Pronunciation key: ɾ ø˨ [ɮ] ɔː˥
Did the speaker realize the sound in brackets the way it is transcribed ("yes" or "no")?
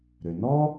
no